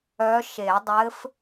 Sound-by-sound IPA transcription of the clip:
œ˧˥ ʃe˨˩˦dˤɘ˧˥f

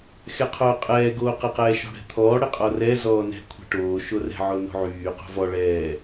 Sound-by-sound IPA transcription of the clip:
xɛqʰoːqʼɛː ɡoːqɛqɛːʃɔ̤ ɽɛ̤t̪ʰɔː ɽɛqʼɔrɛ zɔːnɛ̤ kʷʰɛ̤ʈoː ʃorɛ̤ ʕono̤ʕyː qo̤vɔ ɭɛː

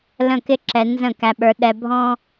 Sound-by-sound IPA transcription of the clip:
lə̃˦˨kɪ˦ ǁɛ˧ nzə̃˦˨kæ˧ɓə˞˧ ɗɛ˧bʱɔ̃˦

